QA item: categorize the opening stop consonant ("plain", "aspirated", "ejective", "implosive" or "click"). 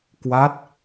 plain